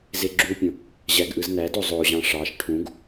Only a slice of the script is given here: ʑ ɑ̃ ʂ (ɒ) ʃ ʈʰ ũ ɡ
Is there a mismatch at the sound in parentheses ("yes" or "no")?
yes